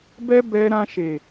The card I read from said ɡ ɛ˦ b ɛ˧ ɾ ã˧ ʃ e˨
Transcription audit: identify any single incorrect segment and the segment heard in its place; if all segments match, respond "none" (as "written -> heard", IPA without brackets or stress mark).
ɡ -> b